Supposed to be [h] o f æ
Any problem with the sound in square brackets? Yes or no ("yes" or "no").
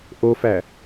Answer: yes